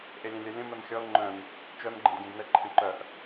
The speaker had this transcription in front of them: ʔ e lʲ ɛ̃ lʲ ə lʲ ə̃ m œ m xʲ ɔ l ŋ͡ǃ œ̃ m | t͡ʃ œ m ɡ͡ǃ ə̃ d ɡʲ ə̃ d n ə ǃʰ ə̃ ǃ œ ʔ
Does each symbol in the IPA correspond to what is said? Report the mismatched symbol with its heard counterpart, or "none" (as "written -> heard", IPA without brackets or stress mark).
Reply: none